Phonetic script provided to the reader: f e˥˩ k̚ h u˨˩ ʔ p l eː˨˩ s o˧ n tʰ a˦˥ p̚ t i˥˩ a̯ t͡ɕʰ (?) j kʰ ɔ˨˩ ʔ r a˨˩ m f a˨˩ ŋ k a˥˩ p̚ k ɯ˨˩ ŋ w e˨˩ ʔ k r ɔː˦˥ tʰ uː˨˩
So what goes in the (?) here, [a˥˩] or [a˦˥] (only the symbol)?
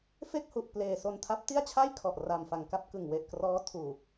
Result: a˥˩